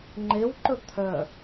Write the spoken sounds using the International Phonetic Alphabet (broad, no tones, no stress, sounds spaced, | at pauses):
ŋ͡ǃ e w ǃ ɵ t̪ʰ œ